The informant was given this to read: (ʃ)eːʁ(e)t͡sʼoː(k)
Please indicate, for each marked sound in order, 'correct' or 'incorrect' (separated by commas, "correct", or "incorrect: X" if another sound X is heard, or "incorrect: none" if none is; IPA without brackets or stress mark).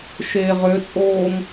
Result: correct, incorrect: ø, incorrect: ŋ